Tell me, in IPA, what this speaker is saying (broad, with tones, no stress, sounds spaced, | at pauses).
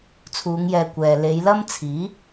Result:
t͡sʰ uː˨˧ ŋ j ɛː˨ kʷ ɛː˨ l e˨˧ j l ɐ˥ m t͡sʰ iː˨˥